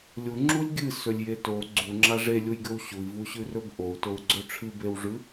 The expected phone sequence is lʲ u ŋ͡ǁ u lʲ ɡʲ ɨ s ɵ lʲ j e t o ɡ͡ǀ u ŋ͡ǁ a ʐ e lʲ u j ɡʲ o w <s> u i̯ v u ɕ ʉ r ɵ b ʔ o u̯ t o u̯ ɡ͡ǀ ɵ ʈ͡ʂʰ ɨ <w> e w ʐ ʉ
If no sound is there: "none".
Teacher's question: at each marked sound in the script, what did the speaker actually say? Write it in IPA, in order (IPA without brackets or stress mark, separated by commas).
ɕ, b